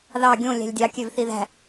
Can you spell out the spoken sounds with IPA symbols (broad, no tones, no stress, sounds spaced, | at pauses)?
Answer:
ð ɑ ɡʲ õ lʲ æ̤ lʲ dʲ ɑ kʲ ø v θ i ð æ̤